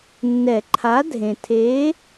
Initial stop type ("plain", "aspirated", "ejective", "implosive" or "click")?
click